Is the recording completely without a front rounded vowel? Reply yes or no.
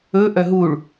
no